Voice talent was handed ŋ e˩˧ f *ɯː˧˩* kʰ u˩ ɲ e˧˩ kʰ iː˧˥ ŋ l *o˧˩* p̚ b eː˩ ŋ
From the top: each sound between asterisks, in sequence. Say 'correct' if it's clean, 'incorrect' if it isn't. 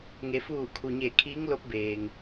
incorrect, incorrect

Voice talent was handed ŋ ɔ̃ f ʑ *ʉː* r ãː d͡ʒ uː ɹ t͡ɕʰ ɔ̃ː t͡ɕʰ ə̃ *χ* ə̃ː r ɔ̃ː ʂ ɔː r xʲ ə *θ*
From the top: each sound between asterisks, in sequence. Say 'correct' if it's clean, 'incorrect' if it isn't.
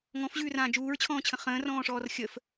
correct, correct, incorrect

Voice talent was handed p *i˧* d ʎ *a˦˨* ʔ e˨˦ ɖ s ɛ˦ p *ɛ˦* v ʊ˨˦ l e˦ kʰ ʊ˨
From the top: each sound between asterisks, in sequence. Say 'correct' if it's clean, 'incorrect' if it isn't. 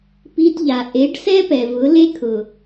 correct, incorrect, incorrect

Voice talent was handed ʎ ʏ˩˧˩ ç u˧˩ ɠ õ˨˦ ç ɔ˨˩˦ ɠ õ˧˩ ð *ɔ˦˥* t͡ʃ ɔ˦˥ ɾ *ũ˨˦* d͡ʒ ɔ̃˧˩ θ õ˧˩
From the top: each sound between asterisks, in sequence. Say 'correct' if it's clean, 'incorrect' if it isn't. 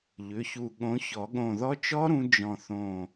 correct, correct

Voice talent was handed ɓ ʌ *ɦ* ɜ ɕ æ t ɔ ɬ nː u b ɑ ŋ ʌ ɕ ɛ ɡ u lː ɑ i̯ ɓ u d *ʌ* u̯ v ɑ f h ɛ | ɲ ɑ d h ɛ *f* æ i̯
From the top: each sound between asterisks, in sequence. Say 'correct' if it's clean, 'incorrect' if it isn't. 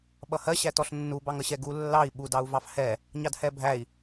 incorrect, incorrect, incorrect

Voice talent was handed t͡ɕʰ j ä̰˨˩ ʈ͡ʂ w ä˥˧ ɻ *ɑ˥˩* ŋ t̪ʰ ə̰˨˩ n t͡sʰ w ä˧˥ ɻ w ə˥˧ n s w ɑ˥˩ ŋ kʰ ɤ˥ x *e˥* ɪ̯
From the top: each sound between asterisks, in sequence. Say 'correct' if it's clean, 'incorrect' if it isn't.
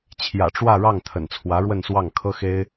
correct, correct

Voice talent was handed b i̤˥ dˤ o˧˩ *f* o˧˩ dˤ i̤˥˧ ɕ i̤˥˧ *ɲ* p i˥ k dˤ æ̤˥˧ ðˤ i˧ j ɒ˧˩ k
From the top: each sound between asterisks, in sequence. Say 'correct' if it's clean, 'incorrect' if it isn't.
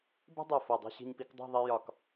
correct, correct

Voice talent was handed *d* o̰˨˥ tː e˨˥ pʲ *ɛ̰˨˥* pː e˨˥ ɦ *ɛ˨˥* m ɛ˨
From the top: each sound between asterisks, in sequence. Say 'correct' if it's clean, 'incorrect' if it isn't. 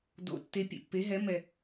correct, incorrect, correct

